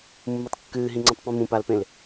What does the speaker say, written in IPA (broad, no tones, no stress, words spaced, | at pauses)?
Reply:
mːutˤkːɨːɦĩŋ͡ǀũtˤ pĩmũpalpẽl